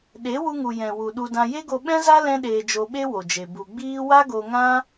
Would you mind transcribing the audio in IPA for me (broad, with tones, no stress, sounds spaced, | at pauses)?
ɗ e˨˦ w u˧ ŋ u˨ j ɛ̃˨ w u˨ ɗ u˧ d ã˧ j e˦ ɡ o˧ ɓ ɛ̃˦ z a˦ l ɛ̃˦ ɗ eː˧ d͡ʒ o˧ ɓ e˦ w o˨ d͡ʒ e˨ b u˨ ɡ͡b iː˦ w a˦ ɡ o˧ ŋ ã˦